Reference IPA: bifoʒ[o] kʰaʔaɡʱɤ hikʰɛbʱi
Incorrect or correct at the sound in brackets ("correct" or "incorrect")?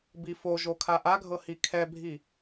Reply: correct